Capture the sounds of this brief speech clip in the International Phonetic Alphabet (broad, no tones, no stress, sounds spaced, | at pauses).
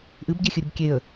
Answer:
ʔ ɨ b ɟ e xʲ ɨ ɾʲ ɨ b kʲ e ə̯